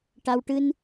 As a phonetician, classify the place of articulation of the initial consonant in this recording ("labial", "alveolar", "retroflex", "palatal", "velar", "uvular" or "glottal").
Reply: retroflex